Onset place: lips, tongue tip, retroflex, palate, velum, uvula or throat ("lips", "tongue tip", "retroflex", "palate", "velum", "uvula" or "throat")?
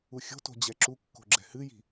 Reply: velum